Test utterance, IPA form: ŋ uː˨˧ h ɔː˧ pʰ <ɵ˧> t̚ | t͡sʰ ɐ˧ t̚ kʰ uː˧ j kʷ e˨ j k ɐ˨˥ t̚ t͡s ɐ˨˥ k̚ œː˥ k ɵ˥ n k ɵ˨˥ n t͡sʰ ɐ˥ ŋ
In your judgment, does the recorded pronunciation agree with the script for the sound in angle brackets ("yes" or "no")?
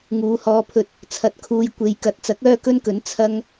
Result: yes